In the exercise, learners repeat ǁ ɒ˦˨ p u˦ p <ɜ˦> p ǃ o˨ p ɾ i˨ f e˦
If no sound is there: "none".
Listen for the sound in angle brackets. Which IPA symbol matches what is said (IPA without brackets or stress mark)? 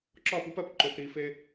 ɜ˦